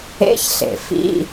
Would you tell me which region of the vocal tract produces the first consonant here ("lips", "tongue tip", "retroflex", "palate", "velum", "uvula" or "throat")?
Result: palate